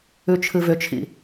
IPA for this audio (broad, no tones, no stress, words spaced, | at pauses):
ʉt͡ʃʰɨvʏt͡ʃʰḭ